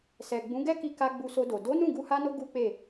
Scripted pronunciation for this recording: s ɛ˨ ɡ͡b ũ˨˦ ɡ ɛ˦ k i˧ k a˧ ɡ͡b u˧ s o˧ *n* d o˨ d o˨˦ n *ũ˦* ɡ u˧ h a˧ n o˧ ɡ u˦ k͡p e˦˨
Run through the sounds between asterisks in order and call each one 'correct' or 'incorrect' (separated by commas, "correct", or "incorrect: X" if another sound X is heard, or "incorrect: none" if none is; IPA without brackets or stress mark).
incorrect: none, incorrect: ũ˦˨